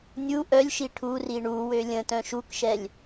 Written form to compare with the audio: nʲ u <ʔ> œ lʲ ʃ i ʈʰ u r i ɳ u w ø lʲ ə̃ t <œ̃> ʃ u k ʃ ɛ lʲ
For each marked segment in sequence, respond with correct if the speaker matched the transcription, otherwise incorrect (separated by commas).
correct, correct